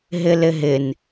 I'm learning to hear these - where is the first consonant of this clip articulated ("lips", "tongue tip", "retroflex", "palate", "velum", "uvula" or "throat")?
throat